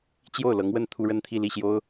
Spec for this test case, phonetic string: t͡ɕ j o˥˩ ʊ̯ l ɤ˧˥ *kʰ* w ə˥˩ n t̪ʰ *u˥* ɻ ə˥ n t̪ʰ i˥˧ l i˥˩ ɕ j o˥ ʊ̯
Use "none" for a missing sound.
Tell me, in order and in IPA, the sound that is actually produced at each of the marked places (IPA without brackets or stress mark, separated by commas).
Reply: ŋ, u˥